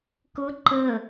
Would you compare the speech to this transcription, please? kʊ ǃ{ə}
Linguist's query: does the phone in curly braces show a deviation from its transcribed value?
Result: no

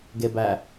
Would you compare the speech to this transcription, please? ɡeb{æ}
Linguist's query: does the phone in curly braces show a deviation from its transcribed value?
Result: no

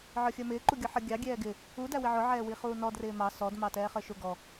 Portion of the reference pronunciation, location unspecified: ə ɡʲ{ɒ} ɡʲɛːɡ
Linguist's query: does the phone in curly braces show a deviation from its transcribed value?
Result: yes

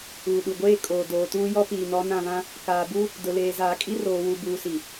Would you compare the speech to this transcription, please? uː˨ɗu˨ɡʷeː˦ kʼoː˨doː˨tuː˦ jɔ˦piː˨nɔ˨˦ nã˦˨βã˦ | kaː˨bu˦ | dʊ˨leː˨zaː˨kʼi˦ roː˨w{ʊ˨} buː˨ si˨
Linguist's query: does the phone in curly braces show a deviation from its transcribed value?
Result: yes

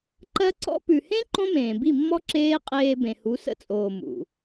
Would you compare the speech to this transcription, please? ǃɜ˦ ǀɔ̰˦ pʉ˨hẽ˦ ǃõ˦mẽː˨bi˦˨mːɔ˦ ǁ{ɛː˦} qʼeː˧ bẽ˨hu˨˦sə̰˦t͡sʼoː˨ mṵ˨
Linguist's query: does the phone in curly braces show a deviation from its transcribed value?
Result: yes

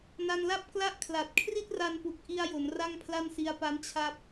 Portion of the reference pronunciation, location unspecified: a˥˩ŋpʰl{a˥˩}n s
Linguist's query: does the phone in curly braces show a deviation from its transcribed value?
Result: no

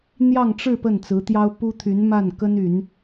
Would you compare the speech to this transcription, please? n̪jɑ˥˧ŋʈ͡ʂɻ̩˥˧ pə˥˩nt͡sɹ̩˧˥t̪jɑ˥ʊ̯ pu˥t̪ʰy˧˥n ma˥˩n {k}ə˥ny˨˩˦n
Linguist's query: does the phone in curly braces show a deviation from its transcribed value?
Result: no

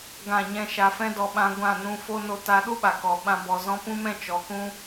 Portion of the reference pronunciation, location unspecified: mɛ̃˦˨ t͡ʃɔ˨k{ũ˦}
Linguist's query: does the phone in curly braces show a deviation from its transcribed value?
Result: no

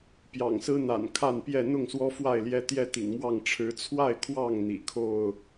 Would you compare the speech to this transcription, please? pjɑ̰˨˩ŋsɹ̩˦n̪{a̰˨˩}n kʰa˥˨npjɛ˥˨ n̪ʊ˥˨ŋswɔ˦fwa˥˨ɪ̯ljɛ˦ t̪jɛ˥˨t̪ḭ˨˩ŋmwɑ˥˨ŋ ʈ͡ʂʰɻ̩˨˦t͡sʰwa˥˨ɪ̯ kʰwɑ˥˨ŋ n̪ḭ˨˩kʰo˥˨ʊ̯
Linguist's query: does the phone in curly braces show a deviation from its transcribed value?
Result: no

